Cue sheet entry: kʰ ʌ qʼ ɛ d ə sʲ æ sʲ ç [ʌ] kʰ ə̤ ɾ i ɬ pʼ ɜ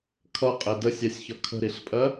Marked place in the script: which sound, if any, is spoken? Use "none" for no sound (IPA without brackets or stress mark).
ʌ